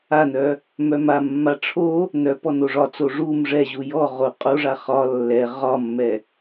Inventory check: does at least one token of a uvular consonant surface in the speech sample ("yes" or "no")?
yes